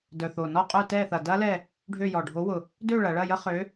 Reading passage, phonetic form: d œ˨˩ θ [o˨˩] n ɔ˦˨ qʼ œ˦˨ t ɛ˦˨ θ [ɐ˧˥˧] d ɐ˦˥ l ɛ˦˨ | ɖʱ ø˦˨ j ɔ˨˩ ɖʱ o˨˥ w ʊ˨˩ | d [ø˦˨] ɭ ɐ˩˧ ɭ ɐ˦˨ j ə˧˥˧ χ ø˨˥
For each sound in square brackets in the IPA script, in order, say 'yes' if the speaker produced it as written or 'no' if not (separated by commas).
yes, no, yes